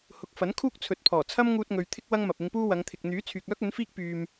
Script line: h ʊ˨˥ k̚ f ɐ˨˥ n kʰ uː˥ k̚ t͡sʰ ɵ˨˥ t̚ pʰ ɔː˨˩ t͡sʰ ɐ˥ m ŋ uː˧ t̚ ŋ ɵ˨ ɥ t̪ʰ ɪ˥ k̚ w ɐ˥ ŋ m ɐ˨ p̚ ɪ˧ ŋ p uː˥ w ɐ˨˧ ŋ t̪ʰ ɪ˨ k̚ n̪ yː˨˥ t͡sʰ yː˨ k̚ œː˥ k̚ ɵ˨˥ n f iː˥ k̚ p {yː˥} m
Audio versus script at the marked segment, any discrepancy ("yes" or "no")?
yes